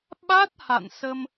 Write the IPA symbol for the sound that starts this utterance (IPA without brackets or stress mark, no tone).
ɓ